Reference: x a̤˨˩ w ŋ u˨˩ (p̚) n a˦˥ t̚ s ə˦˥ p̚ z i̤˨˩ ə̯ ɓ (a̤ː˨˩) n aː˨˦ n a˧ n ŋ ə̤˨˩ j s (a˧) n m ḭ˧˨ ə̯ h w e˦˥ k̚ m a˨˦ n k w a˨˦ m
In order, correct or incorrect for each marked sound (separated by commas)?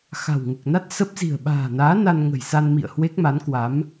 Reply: incorrect, correct, correct